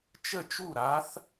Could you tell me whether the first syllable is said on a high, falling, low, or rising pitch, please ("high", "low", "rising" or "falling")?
falling